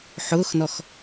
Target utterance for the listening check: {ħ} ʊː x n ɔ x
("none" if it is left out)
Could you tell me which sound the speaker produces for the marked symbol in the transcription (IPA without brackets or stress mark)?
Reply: ħ